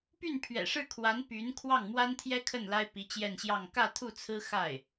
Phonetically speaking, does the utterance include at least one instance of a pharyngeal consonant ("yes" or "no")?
no